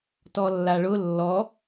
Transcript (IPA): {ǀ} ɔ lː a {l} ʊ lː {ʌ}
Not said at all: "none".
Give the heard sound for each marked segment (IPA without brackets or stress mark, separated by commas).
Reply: t, ɭ, ɔ